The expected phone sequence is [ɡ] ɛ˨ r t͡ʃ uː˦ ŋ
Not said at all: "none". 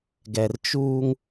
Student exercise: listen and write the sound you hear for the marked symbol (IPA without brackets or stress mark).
ɡ